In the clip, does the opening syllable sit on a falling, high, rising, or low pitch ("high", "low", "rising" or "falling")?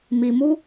low